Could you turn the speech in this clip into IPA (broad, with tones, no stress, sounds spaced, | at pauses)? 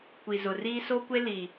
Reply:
kʷ i˨ z ʊ˨ r iː˦ s o˦ kʷ e˦ l i˨